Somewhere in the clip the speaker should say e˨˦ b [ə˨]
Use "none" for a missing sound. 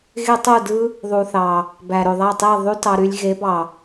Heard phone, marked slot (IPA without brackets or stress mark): ɑ˨